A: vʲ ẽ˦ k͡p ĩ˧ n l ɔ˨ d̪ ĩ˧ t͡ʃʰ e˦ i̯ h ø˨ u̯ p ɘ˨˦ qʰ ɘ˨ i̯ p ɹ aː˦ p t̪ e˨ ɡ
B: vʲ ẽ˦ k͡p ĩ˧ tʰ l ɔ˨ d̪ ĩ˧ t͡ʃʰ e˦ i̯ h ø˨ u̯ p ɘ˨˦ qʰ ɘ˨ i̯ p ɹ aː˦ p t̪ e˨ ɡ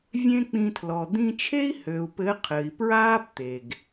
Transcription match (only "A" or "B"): B